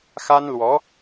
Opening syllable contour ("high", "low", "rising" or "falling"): high